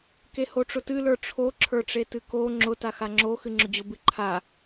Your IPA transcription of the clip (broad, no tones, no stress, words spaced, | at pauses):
kehoʈ͡ʂʊtɨ lə˞ʈ͡ʂʰo ǁʰə˞ʈ͡ʂetɨko ŋ͡ǁʊ taxaŋ͡ǁo xɨŋ͡ǁʊd͡ʑʊ bɨǃʰa